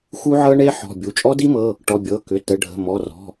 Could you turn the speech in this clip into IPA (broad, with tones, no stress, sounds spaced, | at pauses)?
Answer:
x u˦˥ ʕ ɤ˦˥ ɳ e˦˥ ħ ɔ̤˩˧˩ bʲ u˩˧˩ t͡ʃʼ ɔ˦˥ d i˦˥ m ɤ˩˧˩ | ʈ ɔ˩˧˩ bʲ ɤ˩˧˩ k ʏ˩˧˩ t ə˩˧˩ ɖʱ ə̤˩˧˩ m ɔ˩˧˩ r ɔ̤˩˧˩